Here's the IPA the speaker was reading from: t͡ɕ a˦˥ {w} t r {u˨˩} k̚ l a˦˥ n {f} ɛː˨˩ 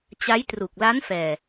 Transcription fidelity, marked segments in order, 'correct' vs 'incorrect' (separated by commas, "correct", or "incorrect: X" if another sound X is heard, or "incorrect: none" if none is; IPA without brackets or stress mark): incorrect: j, correct, correct